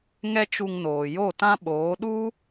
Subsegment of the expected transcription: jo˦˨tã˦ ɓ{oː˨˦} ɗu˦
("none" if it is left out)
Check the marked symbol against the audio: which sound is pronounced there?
oː˨˦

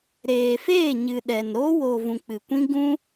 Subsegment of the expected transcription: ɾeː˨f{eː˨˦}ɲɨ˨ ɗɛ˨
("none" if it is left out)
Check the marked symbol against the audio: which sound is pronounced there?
eː˦˨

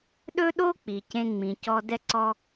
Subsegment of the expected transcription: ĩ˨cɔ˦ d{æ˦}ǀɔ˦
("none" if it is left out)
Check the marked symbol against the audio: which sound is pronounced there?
ɛ˦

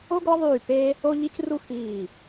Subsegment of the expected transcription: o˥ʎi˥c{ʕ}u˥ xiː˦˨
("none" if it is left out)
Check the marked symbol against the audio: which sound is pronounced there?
r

